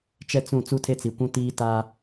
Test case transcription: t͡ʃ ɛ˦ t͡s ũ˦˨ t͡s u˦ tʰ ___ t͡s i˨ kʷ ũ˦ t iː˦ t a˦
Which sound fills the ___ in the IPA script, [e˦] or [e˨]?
e˦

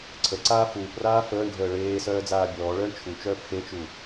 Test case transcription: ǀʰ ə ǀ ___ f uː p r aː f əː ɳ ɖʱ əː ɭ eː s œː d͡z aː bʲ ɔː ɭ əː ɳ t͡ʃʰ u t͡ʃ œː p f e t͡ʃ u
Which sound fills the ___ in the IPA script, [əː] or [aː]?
aː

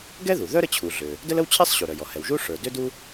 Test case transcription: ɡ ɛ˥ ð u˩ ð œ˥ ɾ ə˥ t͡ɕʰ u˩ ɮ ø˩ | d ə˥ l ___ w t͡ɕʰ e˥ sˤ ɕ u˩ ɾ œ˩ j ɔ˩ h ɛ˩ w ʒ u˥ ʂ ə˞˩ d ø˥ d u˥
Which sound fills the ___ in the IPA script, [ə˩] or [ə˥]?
ə˥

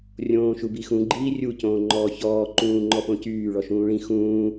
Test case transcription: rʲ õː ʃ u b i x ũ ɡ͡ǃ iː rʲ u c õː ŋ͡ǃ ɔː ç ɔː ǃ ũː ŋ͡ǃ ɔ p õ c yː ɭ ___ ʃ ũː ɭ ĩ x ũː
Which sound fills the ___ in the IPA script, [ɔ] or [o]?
ɔ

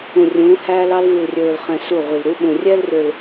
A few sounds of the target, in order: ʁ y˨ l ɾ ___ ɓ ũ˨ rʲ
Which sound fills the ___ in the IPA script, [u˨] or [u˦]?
u˦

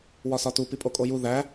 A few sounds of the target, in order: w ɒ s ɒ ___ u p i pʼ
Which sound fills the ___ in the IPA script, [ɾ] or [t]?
t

